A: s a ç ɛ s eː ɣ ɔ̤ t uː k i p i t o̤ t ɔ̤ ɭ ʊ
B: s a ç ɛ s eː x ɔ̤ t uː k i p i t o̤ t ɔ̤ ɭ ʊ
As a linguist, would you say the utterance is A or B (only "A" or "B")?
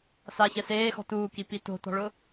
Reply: B